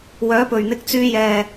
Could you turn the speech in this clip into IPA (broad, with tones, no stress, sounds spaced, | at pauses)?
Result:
w œː˨˥ p ɵ˨˩ ɥ n̪ ɪ˨˥ k̚ t͡s yː˧ j ɛː˨˩